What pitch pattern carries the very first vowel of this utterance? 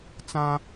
high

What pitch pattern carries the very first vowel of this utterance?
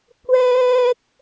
high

